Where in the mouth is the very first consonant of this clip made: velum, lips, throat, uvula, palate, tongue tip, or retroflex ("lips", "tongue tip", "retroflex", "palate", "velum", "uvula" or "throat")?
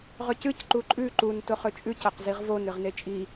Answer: uvula